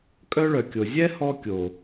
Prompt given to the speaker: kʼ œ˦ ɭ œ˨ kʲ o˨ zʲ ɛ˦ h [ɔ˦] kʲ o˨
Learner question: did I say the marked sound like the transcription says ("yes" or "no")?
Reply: yes